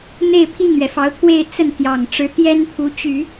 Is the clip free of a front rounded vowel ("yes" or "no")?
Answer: no